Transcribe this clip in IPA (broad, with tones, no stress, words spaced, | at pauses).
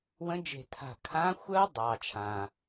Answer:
wə̃˨˥d͡ʒe̤˧˩ tʰa̤˧˩ kʰã˨˥xʷəː˦˥ dˤɑː˩t͡ʃʰã˩